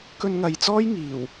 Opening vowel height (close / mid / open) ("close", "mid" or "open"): mid